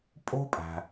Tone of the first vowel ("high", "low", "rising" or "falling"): high